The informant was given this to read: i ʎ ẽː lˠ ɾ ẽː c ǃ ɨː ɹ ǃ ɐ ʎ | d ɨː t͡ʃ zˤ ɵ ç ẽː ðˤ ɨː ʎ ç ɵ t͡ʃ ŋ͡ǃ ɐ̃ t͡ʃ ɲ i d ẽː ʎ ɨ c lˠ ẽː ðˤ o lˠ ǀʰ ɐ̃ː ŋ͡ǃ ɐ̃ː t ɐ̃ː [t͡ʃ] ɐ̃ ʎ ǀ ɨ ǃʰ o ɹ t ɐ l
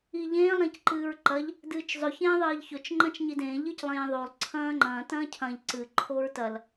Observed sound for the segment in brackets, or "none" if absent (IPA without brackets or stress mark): cʰ